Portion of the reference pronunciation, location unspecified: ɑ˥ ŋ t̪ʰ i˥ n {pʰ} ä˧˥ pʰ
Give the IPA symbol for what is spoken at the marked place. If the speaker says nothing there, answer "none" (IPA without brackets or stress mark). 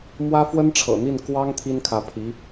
kʰ